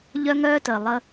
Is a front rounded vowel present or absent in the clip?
present